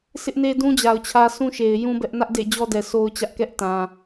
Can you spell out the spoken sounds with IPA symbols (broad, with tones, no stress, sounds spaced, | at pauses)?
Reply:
s ɪ˦ ʔ n e˦ d ũ˦ d͡ʑ a˨ ʊ̯ t͡ɕʰ ä˦ sʰ ũ˦ ʃ e˨ ɪ̯ j ũ˦ b ɛ˦ ʔ n ä˦ ʔ d ḛ˦˨ d͡ʑ ɔ˦ d ɛ˨ s o˦ ʊ̯ t͡ɕ ä˦ ʔ k ɛ˦ ʔ t ã˨